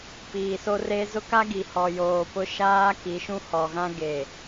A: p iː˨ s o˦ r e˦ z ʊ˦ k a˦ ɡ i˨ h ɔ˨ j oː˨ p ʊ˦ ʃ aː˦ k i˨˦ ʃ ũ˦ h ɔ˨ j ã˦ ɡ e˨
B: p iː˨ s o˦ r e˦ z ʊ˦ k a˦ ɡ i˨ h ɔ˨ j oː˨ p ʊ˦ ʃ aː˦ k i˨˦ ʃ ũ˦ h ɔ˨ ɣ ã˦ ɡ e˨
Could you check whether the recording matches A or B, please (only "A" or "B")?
B